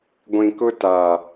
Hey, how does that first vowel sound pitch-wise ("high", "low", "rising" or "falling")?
low